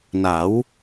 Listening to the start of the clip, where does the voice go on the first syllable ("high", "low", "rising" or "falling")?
rising